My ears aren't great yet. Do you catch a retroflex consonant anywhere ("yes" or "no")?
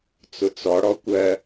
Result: yes